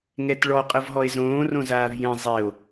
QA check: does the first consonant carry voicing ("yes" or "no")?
yes